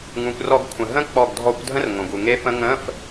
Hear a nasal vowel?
yes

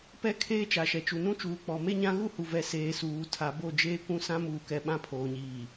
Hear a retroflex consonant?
no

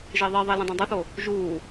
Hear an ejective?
no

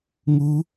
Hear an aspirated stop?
no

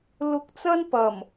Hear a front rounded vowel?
no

